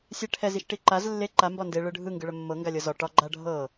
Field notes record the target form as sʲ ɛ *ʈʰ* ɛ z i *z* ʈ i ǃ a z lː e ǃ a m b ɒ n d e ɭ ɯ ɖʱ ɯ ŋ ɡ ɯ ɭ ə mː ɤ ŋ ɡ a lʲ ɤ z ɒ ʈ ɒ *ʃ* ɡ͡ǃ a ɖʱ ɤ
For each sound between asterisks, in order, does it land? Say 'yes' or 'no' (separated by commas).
yes, no, no